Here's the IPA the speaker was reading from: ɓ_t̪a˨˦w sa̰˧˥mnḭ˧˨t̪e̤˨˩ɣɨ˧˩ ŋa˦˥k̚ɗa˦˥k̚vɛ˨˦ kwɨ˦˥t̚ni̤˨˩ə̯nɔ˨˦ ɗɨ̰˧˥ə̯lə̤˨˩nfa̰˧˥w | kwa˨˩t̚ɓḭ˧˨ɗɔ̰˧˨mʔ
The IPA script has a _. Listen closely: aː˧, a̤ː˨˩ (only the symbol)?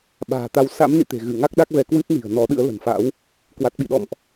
a̤ː˨˩